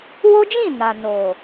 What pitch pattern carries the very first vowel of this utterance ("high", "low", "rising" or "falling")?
high